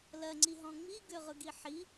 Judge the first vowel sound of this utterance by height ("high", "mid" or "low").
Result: low